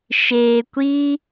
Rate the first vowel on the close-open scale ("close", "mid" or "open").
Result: mid